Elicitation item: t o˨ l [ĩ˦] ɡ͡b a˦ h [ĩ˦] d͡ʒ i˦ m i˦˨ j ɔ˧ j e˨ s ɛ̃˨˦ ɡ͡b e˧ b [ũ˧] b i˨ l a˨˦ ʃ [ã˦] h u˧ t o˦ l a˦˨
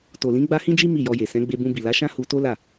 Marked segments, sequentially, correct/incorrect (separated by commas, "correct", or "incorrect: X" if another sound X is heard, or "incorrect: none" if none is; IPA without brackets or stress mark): incorrect: ĩ˨˦, correct, correct, correct